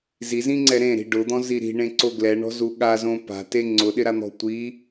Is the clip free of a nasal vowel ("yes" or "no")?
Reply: no